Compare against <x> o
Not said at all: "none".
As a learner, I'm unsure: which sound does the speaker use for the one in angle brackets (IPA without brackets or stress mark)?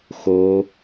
x